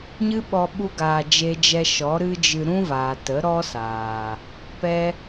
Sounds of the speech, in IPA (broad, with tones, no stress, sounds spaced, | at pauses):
ɲ ɨ˦ ɓ ɔ˧ ɓ u˦ ɡ aː˧ d͡ʒ e˧ d͡ʒ ɛ˧ ʃ ɔ˨˦ ɾ ɨ˦ d͡ʒ ɨ˧ ɾ ũ˦ v aː˨ t ə˨˦ ɾ ɔ˦ s aː˨ | p ɛ˦